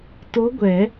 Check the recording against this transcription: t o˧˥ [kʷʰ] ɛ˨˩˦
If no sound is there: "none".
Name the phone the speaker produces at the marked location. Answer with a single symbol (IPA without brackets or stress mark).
ɡʷ